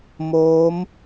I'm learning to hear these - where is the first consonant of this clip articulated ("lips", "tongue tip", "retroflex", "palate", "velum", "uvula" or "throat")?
lips